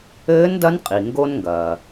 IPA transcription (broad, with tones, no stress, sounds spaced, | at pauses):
ɘː˧˥ n d ɐ˧˥ n qʼ i˩ ŋ ɡ o˧ n ŋ ɡ ɐː˩